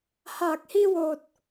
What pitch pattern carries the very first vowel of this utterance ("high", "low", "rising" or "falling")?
low